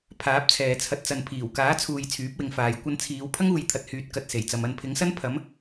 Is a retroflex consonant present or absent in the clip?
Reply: absent